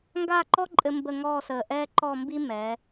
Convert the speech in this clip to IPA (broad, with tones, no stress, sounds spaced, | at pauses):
ŋ ɡ aː˥˧ ǃ ɔ˥ ǃʼ ɘ˧ m b ə˥˧ ŋ ɔː˥˧ s əː˧˩ ʔ ɛː˥ ǃ ɔ˥˧ m b i˥ m ɛː˩˧